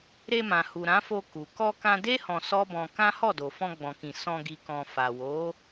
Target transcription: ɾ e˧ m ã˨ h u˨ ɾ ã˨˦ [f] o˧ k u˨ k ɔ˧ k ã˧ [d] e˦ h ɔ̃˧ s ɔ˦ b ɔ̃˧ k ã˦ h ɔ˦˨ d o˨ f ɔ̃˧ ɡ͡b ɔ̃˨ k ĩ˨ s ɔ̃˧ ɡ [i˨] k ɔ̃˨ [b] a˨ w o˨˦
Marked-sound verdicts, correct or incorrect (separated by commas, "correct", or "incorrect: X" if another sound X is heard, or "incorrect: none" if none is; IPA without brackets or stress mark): correct, correct, correct, incorrect: f